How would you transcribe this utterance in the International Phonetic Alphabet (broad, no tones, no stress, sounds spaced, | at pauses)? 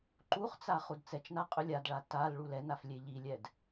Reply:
ǃ u χ t͡s a χ u d t͡s ɛ t͡ʃ n a qʼ ɵ lʲ a d ɭ a t a l ɭ u l ɛ n a f lʲ e ʎ i lʲ ɛ d